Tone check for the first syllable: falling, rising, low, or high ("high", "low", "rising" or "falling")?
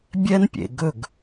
high